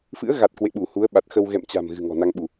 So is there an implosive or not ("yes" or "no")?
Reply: yes